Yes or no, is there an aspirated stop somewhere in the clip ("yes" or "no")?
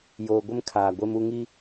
yes